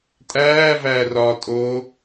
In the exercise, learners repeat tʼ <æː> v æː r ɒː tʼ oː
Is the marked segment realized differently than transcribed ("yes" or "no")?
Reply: no